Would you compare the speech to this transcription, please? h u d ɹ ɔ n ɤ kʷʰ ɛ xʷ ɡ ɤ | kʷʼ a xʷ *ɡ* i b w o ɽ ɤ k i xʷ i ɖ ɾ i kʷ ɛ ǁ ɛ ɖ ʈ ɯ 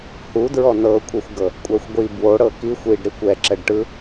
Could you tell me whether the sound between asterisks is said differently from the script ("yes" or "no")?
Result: yes